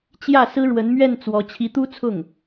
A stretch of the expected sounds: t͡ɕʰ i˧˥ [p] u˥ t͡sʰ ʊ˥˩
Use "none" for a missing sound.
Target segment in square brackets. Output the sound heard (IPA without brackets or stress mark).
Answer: t̪